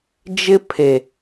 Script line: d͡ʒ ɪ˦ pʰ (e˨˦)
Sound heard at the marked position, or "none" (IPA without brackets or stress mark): e˨